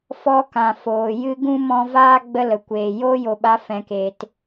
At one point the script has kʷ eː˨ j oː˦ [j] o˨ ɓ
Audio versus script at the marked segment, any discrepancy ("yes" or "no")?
no